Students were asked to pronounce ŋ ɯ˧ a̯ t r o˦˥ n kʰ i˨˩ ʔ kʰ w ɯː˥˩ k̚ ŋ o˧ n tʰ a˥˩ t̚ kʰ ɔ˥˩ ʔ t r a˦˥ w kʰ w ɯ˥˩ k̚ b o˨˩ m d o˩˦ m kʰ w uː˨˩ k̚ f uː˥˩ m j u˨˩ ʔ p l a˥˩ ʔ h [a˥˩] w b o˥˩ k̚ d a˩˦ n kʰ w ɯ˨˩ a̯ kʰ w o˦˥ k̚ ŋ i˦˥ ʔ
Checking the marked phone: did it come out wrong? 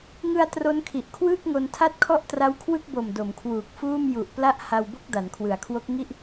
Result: yes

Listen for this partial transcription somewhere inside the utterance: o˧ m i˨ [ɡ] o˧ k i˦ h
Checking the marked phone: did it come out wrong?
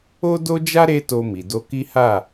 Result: yes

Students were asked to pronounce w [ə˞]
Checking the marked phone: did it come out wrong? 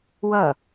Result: yes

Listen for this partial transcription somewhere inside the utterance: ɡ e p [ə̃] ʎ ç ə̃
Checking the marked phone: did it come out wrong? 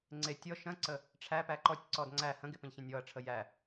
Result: no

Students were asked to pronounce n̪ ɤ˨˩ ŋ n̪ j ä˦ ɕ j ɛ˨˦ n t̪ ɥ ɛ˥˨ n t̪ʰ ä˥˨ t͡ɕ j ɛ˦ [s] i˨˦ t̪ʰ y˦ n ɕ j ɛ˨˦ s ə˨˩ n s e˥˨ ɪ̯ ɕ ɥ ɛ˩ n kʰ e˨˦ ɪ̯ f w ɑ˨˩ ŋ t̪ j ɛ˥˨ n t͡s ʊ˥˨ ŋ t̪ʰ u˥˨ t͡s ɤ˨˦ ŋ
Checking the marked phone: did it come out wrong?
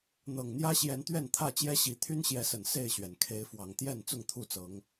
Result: yes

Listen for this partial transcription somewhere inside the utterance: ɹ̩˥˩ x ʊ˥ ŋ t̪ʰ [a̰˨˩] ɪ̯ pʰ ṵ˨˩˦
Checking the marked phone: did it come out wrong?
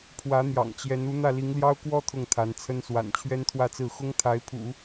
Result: yes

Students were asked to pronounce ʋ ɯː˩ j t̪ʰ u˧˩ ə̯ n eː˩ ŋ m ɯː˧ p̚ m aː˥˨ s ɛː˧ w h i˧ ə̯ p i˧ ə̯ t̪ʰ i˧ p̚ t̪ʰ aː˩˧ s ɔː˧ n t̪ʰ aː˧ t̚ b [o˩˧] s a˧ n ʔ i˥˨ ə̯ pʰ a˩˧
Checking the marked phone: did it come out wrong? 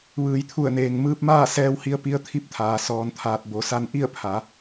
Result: no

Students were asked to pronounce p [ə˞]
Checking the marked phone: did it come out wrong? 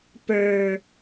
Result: no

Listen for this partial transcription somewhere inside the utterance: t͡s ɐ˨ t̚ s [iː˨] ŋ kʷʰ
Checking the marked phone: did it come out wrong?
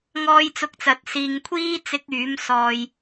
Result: no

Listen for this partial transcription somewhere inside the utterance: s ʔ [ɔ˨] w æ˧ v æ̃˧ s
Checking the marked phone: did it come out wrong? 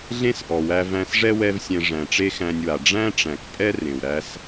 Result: no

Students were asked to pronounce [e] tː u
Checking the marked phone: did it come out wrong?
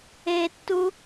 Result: no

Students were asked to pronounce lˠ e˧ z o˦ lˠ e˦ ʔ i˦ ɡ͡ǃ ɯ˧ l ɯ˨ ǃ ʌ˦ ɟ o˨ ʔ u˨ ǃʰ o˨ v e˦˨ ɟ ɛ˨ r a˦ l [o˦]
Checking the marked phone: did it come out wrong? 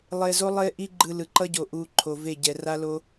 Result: no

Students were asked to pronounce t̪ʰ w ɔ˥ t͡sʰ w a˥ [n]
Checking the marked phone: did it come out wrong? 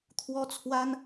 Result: no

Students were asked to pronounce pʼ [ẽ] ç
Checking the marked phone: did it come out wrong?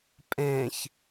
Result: no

